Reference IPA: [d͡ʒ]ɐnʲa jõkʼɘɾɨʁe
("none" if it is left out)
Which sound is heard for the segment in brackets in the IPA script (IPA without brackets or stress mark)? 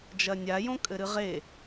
d͡ʒ